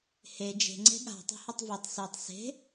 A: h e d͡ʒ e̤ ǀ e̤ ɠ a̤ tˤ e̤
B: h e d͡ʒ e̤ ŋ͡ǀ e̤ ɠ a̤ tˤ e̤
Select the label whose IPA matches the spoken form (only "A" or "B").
B